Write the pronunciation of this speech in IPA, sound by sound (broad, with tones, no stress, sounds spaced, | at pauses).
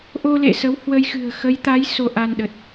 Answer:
ʔ o˧ l ḛ˧˨ s ə˨˦ w h w ə˧ j x ɨ̤˨˩ ə̯ x ə˨˦ j t̪ a˨˦ j s o˧ ʔ a˧ n ɗ ə˨˩ t̚